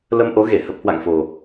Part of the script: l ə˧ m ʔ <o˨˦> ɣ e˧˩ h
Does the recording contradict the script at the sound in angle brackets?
no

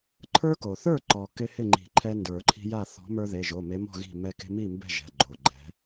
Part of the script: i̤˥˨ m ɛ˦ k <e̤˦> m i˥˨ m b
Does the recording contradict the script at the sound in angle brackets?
no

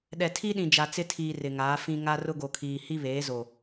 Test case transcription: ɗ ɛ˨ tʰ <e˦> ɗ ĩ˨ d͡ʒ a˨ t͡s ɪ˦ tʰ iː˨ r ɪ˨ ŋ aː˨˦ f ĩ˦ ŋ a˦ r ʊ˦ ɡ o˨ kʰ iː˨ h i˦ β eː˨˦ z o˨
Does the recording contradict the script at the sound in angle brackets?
yes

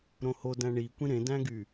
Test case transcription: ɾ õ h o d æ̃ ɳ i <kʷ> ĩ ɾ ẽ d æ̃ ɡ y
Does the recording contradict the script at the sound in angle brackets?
no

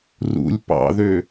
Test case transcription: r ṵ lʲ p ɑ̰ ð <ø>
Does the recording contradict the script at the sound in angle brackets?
no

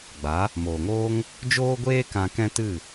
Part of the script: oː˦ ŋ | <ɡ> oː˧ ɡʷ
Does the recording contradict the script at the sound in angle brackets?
yes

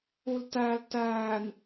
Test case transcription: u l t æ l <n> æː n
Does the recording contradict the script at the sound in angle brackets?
yes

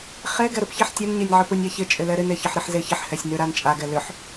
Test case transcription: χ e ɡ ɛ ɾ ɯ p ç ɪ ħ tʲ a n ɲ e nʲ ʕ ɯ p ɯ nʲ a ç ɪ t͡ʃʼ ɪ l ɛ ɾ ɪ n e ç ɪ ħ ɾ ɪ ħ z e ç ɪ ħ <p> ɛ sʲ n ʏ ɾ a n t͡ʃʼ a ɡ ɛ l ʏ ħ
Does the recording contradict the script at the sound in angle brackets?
yes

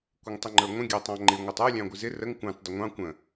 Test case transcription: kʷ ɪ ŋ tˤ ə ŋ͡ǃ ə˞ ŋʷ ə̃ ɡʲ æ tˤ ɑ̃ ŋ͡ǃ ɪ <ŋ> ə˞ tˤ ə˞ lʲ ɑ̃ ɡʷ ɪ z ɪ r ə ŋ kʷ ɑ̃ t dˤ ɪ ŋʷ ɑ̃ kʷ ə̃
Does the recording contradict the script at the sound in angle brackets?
yes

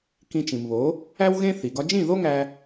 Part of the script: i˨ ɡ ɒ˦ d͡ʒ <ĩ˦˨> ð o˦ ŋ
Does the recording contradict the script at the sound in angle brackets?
no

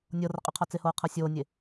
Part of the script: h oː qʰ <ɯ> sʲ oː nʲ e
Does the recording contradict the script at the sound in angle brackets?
yes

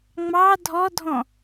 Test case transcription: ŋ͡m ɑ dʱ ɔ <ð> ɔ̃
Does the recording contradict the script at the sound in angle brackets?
yes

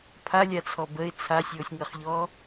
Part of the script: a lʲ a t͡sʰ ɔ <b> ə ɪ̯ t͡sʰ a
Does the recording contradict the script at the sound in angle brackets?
no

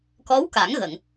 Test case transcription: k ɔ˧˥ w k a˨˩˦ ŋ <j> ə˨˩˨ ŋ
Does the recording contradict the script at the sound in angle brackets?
yes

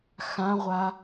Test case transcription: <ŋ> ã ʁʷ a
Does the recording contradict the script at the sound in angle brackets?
yes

